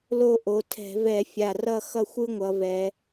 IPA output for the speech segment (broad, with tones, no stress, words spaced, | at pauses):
lo˦˨ʔo˩˧tʰɛ̤˧˩˧ vɛ˧˩˧fʲa˨˩rʌ˦˨ xʌ˦˨xʷɯ˦ŋʷʌ˩˧vɛ˩˧